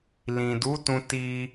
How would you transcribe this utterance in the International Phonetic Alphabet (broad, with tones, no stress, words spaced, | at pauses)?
lĩ˨du˨˦tũ˧ ti˧